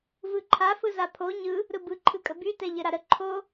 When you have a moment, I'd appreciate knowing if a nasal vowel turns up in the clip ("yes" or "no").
no